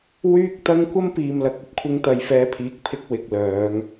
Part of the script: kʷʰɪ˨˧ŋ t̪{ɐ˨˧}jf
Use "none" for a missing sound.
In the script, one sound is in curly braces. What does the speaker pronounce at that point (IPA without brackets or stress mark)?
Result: ɐ˨˧